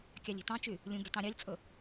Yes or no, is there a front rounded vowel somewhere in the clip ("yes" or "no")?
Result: yes